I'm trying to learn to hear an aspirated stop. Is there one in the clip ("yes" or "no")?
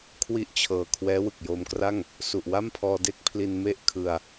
yes